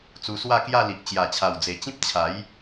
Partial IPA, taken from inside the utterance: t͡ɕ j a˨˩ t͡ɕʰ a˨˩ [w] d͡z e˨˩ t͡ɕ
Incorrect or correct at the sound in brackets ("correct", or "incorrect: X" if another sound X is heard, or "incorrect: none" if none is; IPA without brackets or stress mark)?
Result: correct